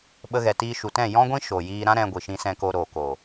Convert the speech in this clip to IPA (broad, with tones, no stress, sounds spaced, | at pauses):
ɓ ə˧ ɣ ɛ˨ t iː˧ ʃ u˨ t ɛ̃˦˨ j ɔ̃˦ ɡʷ ĩ˦ ʃ o˨ j iː˧ ɾ ã˦ ɾ ɛ̃˧ ɡʷ i˨ ʃ ĩ˧ s ɛ̃˧ k o˧ ɾ oː˨ k o˨